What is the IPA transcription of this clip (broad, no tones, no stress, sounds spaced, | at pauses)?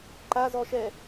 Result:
ǃ a z ɔ ʃ ɛ